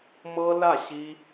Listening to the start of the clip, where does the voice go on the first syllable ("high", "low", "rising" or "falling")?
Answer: high